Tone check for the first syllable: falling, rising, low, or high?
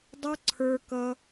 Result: high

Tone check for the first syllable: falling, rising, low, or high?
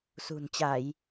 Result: low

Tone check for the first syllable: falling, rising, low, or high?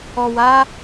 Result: low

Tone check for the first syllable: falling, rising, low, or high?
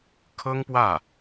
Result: high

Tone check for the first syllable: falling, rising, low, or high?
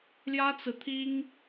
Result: high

